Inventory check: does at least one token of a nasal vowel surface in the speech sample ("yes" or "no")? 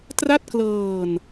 no